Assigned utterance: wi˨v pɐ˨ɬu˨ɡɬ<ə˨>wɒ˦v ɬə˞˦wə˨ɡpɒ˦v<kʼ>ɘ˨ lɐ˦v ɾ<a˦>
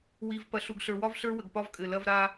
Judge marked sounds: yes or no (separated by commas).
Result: no, yes, yes